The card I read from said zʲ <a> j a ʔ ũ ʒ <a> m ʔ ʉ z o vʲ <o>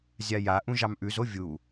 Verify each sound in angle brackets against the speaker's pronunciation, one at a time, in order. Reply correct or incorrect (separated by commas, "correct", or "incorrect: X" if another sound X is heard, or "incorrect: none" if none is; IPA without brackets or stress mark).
correct, incorrect: ɑ, incorrect: u